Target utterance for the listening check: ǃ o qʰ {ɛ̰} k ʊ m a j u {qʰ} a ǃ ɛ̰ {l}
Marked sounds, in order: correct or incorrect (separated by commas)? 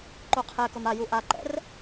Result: incorrect, incorrect, incorrect